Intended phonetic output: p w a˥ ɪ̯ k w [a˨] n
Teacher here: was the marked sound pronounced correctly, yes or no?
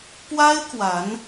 no